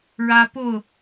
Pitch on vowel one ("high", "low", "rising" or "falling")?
high